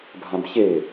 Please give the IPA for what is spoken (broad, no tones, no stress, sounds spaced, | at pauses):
bʱ ã b ç e